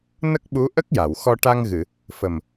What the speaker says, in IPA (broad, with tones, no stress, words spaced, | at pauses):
nə˦˥k̚ɓu˧˥ ʔə˦˥k̚ja˨˩˨wxɔ˧ ʈa˧ŋɣɨ˨˩˨ | fə˨˩m